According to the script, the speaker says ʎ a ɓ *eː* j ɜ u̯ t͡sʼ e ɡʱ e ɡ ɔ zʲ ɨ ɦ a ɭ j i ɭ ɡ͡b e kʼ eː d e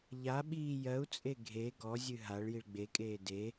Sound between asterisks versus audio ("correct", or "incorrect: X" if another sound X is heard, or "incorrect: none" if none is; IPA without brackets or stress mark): incorrect: iː